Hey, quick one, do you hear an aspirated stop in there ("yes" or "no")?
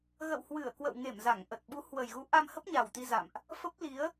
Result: no